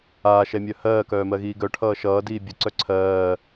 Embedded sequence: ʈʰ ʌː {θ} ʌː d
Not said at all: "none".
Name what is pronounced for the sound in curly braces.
ʃ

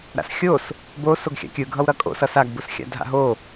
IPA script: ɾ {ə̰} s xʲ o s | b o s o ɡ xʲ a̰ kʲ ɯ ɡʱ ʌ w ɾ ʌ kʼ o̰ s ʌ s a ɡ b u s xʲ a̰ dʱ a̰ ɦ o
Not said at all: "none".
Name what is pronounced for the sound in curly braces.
a̰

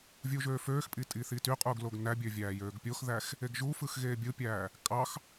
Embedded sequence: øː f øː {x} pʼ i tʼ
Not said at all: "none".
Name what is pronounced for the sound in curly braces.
x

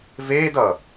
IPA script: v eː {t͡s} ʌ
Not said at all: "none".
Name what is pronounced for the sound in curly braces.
d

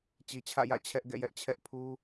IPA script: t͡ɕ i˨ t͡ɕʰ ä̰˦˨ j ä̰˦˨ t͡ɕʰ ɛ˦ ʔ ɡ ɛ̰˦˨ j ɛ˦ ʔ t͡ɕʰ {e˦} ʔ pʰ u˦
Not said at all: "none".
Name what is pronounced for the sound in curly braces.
ɛ˦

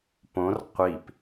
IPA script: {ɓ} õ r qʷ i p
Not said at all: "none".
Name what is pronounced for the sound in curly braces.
p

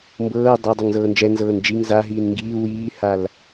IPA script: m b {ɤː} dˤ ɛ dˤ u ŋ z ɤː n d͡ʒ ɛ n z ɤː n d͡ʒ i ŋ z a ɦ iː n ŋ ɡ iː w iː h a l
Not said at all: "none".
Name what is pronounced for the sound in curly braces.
ɤː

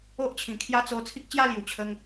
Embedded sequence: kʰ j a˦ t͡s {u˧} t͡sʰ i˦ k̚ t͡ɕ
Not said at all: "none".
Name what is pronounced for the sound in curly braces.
o˧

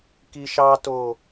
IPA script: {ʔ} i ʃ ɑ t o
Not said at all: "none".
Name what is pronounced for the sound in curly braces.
k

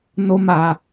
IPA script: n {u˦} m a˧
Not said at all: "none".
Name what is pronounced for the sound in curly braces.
o˦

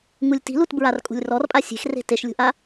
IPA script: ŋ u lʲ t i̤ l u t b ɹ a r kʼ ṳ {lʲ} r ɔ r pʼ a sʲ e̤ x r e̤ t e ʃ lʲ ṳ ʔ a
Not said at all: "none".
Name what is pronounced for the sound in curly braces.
lʲ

